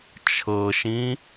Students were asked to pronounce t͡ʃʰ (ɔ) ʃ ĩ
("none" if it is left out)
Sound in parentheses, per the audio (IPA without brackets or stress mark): ɤ